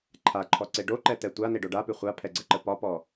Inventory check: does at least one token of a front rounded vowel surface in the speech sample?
no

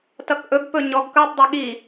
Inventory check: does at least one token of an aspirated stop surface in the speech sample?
no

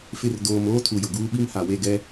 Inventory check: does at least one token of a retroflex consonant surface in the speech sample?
no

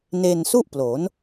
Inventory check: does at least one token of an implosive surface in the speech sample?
no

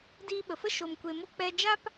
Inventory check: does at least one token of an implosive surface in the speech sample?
yes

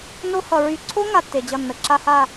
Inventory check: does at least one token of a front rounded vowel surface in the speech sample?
yes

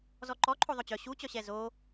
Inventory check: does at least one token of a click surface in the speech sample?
yes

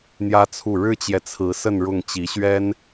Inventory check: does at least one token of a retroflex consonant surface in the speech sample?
yes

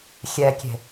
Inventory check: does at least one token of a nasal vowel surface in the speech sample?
no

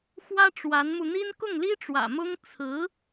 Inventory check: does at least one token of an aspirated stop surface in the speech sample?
yes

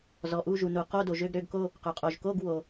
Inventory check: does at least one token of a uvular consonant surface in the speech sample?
yes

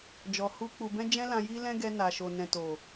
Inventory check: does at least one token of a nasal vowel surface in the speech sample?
yes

